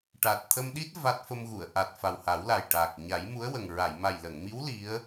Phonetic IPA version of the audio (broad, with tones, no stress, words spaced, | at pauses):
ʈa˨˩t̚ t̪ʰə˧mɗi˦˥t̚ va˦˥t̚ fə˧mɣu˨˩˨ə̯ ʔa˨˩t̚ fa˨˩wha˨˩˦wla˨˩j ʈa˨˩k̚ ɲa˨˩˦jmu˧˥ə̯wə˨˩ŋɹa˨˩˨j ma˨˩jlə˨˩˨ŋmi˧˥w li˧˥ə̯